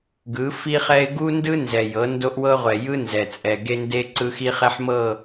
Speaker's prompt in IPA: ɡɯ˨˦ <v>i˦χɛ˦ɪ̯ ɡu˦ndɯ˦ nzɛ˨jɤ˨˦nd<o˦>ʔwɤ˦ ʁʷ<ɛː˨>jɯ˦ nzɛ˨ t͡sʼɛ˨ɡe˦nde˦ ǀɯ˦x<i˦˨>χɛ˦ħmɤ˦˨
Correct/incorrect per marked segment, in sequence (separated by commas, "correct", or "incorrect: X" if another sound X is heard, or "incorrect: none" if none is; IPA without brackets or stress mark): incorrect: f, correct, incorrect: ɛ˨, incorrect: i˦